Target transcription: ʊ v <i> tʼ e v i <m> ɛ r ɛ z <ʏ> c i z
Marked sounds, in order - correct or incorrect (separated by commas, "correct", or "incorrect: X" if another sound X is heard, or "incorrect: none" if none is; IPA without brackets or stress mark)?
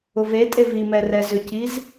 incorrect: e, correct, correct